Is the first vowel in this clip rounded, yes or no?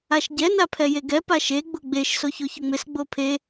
no